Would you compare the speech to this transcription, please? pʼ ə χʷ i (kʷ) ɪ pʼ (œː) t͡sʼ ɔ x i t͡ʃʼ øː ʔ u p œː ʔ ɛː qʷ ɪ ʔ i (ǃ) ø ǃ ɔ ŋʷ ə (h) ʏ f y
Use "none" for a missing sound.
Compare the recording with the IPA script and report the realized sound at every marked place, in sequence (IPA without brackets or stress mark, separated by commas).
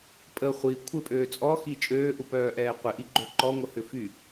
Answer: kʷʰ, øː, ɡ͡ǃ, h